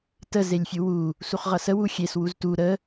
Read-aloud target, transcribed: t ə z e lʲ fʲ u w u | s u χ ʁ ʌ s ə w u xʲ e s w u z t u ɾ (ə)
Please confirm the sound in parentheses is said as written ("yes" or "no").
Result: yes